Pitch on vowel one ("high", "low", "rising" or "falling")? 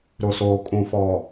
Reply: low